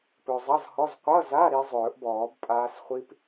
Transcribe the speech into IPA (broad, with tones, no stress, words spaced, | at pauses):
pɵ˨zˤʌ˧˥˧zhɔ˧˥˧z qʷʌ˧˥˧za˧˥˧ ɾi˦˥ zˤɵː˨˩˦ʔbɔː˨˩˦b pʼaː˦˥s χʷi˦˥p